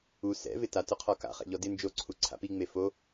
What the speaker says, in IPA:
u sɛ̰vɪ tatʊqʰɔ ka̰ χɛ̰ʎɔdɪ nd͡ʒoǀʰu ǀʰa̰piŋ͡me fo

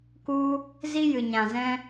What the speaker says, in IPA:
ku˧ | zi˧jɨ˨ɲã˨zɛ̃˧

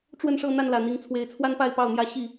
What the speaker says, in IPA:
ʈ͡ʂwə˥˨nʂɤ˥˨n̪a˥˨n lä˨˩n̪i˨˦ŋt͡sʰwe˨˦ɪ̯ t͡sʰwa˦npa˥˨ɪ̯pɑ˥˨ʊ̯n̪jä˦ ɕi˥˨

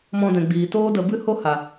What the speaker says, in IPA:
mɔ̃˧dɛ̃˨ ɡ͡biː˨toː˦də˧ bɨ˦ho˦ ha˨

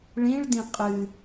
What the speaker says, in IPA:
ɭĩɭdĩ qʼɨ

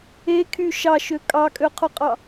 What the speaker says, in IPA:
ekʰy ʃɑʃø kʼɑkʼøqʰoqʼɑ

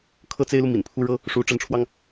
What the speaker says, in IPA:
kʰɤ˥t͡se˥ɪ̯lu˨ mḭ˨˩npʰu˥ɻɤ˥ | ʂu˧˥ ʈ͡ʂə˧˥nʈ͡ʂʰwɑ˧ŋ

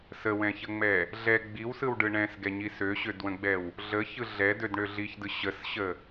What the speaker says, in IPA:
səwɛ̃çəŋ͡mɛ | ɮɛ ɡ͡biwsɯwɖɯ ɳɛ̃sɡɛɲi søɕødwə̃ɡ͡bɛw | ɮəçɯ ɮɛdødɳø ɮiçdɯ ɕəsɕə

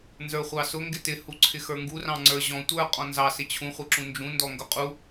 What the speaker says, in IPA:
nzə˞χʷɑsʊ ŋɡɪtɪ huǀʰɪxə˞ŋɡu rɑ̃ŋ͡ǀə˞ʑɔ̃ tʷə˞ qʼɔ̃nzɑ sɪt͡ɕʰũ χʷɪǁũnd͡ʒũ ndɔŋɡʊqʼu

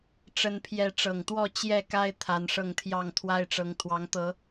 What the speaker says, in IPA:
ʈ͡ʂə˦npʰjɛ˥˨ ʈ͡ʂɤ˨˩ŋt̪wɔ˥˨ t͡ɕjɛ˥˨ka˦ɪ̯ t̪ʰa˨˦nʂɤ˥˨ŋt̪ʰjɑ˥˨ŋ t̪ʰwa˦ɪ̯ʈ͡ʂɤ˨˦ŋ t̪ʰwɑ˨˦ŋt̪ɤ˨˦

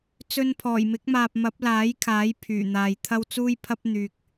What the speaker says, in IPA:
t͡sɵ˧n pʰɔː˨˩jmɪ˨˥k̚maː˨p̚ mɐ˨˥p̚laː˨˥jkʰaː˨˥j pʰyː˨˩n̪aː˨jt̪ʰɐ˥w t͡suː˥jpʰɐ˥p̚ n̪yː˧k̚

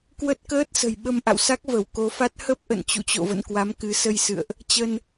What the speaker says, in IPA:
kwə˦˥t̚kəː˦˥t̚sə̤˨˩j ɓə˧mʔa̰˧˨wsa˦˥k̚ və˧˩wko˨˦fa˦˥t̚ hə˦˥p̚ʔə̰˧˨n t͡ɕṵ˧˨t͡ɕo̰˧˨və̰˧˨n kwa˨˦mkɨ˨˦sə˧jsɨ̰˧˨ə̯ʔ | t͡ɕə˧n

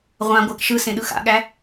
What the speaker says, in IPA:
ʁʷã ɡʷæk ʃɯsẽɗɯ xa̰ɠæ

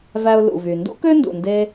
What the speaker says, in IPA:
væ˧ʊ̯lṵ˩vy˩ ndṵ˥kø˥ndṵ˩nde˧

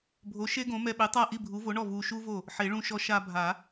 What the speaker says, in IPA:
bʱo˨˥ʃe˥ɡõ˨˥ mɛ˧ɓe˨˥tˤa˥˩ ʔi˥˩bʱu˨˥vo˨˥ɳɔ˥˩ vu˧ ʃu˥vo˥˩ | ħe˨˩˦ɭũ˧ ʃɔ˧ʃa˧ bʱa˨˩˦

